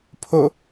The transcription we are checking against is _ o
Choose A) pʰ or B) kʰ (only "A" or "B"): A